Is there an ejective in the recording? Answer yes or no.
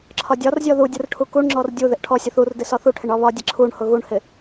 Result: no